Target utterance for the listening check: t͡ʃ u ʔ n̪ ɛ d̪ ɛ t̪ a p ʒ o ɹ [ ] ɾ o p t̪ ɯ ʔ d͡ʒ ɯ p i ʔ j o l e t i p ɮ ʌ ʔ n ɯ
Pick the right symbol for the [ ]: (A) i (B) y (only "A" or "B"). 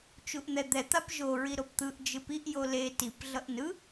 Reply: A